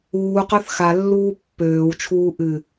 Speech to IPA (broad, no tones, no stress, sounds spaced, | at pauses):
uː q œ θ x a lː uː pː øː w t͡ʃʰ uː ʔ ɨ